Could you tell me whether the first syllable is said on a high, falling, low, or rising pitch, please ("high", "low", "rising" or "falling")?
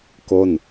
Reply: falling